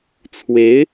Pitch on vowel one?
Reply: rising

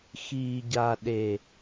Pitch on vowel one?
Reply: low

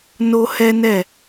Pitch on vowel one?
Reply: high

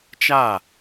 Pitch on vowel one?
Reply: falling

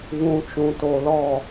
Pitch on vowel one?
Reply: low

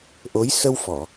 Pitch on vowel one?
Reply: rising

